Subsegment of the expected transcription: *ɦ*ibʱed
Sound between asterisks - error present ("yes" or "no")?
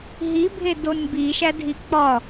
no